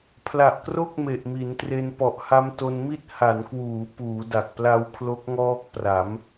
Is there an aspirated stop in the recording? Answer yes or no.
yes